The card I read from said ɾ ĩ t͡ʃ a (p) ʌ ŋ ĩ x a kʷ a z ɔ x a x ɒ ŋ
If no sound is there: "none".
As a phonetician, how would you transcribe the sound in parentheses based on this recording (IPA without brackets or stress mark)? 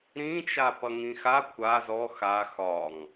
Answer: p